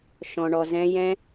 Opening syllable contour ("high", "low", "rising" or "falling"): low